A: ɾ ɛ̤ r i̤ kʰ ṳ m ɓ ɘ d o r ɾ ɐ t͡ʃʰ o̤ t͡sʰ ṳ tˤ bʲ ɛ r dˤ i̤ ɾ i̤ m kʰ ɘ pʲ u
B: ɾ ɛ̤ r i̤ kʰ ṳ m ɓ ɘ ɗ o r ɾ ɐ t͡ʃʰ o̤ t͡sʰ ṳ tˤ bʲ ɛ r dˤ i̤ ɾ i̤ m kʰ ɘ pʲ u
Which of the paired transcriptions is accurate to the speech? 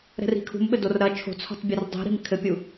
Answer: A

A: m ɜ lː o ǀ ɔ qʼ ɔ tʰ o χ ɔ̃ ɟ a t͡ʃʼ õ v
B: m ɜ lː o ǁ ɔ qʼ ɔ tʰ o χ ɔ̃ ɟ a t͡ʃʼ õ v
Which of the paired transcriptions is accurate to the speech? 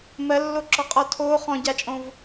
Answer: B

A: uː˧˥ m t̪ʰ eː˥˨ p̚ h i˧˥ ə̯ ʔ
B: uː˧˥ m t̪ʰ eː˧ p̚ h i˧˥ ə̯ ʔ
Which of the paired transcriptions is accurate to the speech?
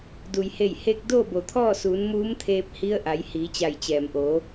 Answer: B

